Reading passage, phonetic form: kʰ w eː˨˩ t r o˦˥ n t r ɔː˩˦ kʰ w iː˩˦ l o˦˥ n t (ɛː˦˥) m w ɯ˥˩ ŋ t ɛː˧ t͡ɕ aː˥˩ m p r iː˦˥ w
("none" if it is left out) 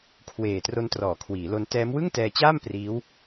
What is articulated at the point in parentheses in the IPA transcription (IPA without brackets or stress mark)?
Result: ɛː˦˥